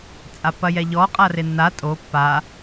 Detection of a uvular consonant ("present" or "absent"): present